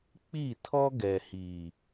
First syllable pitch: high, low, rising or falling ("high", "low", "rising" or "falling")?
falling